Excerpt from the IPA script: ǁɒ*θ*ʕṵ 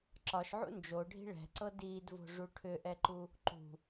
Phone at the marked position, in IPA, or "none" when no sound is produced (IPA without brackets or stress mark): ʃ